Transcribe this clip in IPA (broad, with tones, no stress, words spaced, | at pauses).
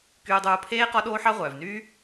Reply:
kyː˧dˤuː˧pʰeː˦ qɔ˦ɗoː˦ħɑ˦ ʁʷœː˨vnyː˦